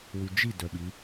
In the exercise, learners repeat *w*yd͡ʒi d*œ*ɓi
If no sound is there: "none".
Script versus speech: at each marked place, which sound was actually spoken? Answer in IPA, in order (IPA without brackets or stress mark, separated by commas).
w, œ